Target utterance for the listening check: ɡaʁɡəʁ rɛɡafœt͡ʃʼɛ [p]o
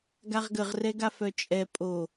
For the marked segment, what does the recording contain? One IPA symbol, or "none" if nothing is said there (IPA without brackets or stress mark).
pʼ